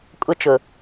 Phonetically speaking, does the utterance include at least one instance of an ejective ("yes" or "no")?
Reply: yes